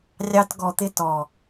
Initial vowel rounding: unrounded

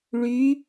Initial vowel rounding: rounded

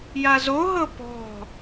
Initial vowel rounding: unrounded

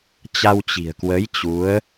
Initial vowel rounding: unrounded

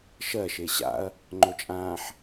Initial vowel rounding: unrounded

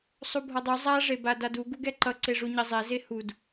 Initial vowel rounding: rounded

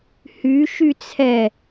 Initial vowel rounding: rounded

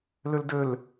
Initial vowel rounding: rounded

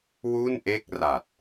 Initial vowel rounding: rounded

